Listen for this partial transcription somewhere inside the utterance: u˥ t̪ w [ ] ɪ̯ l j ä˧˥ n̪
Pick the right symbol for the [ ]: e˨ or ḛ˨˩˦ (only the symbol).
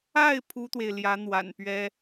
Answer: e˨